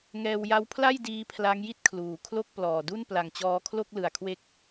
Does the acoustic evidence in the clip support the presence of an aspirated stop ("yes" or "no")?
yes